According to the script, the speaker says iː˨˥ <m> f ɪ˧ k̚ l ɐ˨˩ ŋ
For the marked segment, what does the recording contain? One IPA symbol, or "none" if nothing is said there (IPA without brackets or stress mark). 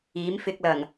m